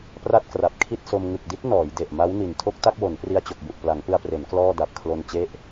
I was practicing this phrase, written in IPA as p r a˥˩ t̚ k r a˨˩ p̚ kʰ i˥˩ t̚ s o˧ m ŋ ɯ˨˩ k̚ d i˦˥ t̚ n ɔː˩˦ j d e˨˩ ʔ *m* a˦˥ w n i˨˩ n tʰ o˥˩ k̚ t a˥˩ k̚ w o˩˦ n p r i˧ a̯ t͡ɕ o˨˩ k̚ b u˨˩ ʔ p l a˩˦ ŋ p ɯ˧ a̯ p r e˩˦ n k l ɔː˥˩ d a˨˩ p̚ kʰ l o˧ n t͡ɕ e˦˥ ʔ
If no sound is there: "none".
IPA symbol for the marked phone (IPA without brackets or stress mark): m